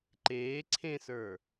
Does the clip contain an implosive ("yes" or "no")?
no